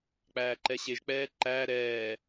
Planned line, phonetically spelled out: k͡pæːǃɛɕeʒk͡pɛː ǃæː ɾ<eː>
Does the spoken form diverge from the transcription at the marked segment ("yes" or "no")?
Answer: yes